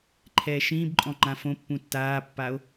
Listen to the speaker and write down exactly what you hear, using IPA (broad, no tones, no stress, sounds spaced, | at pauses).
ǃʰ ɛː ʃ ĩː b ǃʼ ɔ̃ ŋ͡ǃ ã f õ pː ũ tː aː pː a o̯